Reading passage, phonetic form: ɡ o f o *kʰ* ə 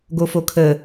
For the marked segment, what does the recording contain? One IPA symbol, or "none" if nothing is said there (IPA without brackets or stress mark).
kʰ